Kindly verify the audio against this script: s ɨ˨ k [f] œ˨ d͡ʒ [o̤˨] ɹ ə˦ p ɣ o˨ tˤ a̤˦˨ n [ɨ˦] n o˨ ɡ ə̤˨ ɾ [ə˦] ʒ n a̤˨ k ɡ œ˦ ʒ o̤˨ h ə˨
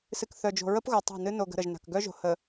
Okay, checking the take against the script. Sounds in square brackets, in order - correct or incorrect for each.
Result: incorrect: θ, correct, correct, incorrect: ə˨

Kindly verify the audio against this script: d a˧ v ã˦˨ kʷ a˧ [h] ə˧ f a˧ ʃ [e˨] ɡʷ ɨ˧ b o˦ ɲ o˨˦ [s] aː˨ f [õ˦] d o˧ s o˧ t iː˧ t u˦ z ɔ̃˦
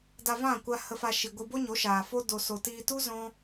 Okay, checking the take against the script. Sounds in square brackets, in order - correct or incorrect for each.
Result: correct, incorrect: i˨, incorrect: ʃ, incorrect: o˦

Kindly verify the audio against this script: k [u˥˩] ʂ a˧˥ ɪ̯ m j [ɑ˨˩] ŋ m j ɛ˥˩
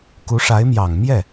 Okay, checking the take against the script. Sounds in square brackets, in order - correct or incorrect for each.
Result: incorrect: u˧˥, correct

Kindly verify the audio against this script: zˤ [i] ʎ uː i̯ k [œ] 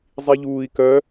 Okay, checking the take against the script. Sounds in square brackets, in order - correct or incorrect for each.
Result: correct, correct

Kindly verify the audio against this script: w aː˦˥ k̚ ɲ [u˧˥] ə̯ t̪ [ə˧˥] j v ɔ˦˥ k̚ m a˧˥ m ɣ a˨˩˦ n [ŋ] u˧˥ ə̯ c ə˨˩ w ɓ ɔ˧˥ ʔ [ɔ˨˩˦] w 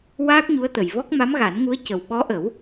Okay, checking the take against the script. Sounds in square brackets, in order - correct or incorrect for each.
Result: correct, incorrect: ə˨˩, correct, incorrect: ə˨˩˦

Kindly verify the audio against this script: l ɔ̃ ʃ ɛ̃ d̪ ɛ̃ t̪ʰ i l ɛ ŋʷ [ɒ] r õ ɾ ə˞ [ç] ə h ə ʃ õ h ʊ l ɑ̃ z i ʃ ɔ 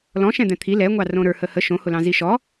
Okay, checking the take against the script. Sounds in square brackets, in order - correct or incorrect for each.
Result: incorrect: ɑ, incorrect: h

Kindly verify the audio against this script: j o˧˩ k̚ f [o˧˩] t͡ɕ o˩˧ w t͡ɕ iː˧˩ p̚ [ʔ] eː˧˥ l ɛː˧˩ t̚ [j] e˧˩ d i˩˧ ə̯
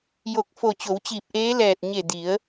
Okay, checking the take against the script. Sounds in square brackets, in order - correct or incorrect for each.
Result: correct, correct, incorrect: ɲ

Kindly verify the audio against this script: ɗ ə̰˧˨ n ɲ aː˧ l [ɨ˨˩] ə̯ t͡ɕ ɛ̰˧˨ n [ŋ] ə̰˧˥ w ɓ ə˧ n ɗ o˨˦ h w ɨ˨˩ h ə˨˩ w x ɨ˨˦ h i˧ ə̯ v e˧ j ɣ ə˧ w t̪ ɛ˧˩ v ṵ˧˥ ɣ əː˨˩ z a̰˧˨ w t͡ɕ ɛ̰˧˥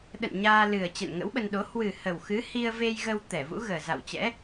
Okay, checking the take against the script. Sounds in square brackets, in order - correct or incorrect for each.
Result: correct, correct

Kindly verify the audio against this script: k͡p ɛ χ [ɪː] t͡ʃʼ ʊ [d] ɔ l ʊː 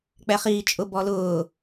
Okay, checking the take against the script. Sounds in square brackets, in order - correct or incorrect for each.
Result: incorrect: iː, incorrect: b

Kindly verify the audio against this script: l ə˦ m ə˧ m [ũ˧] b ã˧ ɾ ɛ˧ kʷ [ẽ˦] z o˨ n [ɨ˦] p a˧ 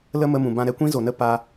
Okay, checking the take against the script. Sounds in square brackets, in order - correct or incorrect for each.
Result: incorrect: ũ˨, incorrect: ĩ˦, incorrect: ə˦

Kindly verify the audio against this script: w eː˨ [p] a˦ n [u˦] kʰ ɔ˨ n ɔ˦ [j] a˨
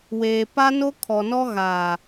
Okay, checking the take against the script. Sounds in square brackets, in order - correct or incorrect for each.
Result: correct, incorrect: o˦, incorrect: ɣ

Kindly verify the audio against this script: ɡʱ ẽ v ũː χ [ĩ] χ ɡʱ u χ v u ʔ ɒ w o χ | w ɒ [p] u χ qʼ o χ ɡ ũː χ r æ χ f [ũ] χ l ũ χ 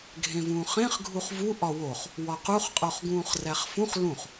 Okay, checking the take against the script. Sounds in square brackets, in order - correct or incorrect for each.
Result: incorrect: ẽ, incorrect: q, correct

